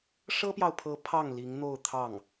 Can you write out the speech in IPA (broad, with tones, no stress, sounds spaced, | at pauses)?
ʂ ɤ˥ p j ɑ˨ ʊ̯ pʰ ɤ˧˥ pʰ ɑ˥˩ ŋ l i˧˥ ŋ n̪ o˥˧ ʊ̯ t̪ʰ ɑ˥˩ ŋ